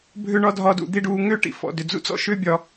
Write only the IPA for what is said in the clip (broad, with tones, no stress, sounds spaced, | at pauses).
bʱ ʏ˥ ɳ ɒ˥ dʱ ɒː˦ d ṵ˨ d̪ i˥ ɖ uː˦ ŋ ʏː˥ ʈ ḭ˨ f ɔ̰˩ d ʏ˩ d͡z ṵ˦ t͡s ɔ̰˥ ʃ ʏː˦ bʲ ɒ˨